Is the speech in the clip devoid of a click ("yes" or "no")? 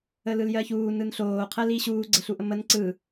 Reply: no